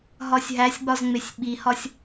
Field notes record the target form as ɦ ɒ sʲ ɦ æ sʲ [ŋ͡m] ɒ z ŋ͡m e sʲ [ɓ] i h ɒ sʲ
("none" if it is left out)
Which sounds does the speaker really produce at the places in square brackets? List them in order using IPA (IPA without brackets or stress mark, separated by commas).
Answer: ɡ͡b, ɓ